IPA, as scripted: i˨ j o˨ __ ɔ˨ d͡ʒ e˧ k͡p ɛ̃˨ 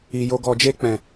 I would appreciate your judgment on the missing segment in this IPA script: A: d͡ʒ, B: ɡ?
B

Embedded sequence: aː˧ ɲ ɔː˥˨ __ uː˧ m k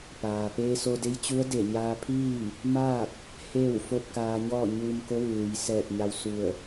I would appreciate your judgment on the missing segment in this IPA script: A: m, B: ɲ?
B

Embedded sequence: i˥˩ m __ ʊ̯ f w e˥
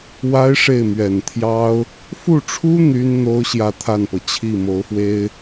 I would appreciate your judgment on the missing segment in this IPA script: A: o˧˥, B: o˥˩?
A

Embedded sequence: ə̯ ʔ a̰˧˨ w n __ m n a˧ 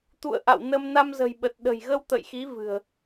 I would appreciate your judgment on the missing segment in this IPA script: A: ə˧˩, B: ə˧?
B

